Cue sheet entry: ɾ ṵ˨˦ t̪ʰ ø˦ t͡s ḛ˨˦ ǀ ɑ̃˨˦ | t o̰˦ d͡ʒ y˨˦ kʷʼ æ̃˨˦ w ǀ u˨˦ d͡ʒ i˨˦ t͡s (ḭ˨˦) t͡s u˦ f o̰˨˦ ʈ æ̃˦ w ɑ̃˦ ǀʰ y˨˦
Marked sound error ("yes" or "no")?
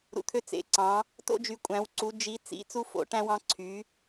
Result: no